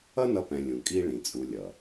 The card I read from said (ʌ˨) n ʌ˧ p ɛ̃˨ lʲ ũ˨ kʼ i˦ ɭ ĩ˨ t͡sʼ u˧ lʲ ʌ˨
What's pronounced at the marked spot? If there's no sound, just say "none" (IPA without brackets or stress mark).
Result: ʌ˦